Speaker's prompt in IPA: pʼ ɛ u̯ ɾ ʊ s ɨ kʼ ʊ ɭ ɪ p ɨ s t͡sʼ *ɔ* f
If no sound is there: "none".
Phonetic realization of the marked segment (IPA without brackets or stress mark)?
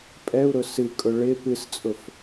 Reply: ʊ